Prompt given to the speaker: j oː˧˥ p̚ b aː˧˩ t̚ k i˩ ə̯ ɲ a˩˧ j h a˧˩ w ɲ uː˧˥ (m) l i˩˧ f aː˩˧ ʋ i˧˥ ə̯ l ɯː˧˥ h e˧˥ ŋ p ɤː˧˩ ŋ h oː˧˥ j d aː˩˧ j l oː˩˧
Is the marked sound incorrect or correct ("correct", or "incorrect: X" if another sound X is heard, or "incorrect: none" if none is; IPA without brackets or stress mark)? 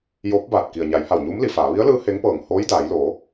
correct